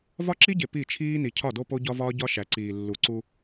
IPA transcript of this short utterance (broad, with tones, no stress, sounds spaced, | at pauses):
v ɒ˦ ǁ i˦ ɟ e˨ p i˦˨ t͡ʃʰ iː˦ n i˨ cʰ ɒ˦˨ d o˦ p o˦ ɟ ɒ˦ v ɒː˦ ɟ ɒ˦ ʃ æ˨ ǀ iː˨ lː u˨ ǀ u˦